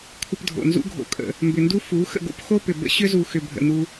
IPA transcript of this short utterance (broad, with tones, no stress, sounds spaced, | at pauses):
kʷʰ ə˧ p dʱ o̰˨ n z ṵ˦ ɡʱ o̰˧ kʼ ə̰˧ | m b ʏ˨ n d u˦ f u˨˦ x ə̰˧ ɡ o̰˦ p x o˦ p ʏ˨ b ə̰˦ ɕ ʏ˦ z u˧ x ʏ˧ bʱ ə̰˧ n u˦